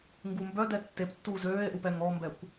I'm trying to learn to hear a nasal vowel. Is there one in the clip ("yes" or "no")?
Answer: no